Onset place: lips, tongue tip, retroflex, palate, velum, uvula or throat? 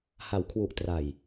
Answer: throat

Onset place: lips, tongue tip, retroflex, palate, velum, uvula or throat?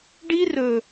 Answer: retroflex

